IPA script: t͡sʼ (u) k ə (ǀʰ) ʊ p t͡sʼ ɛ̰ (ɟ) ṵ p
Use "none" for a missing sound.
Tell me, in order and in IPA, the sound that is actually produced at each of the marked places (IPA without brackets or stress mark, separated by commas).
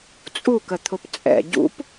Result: u, t̪ʰ, ɟ